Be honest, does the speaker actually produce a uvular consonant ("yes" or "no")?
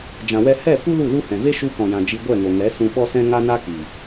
no